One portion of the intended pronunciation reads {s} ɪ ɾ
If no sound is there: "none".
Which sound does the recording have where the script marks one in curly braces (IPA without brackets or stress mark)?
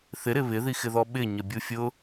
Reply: θ